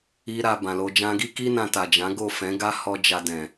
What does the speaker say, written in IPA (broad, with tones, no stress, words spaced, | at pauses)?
i˧ ɾa˨ bã˨lo˧ d͡ʒã˧ɡi˦ki˦ nã˧ta˨d͡ʒã˨˦ ɡo˦˨fɛ̃˨˦ɡa˦ hɔ˦d͡ʒa˧dɛ̃˨